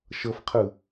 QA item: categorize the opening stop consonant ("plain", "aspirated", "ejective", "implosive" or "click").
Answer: aspirated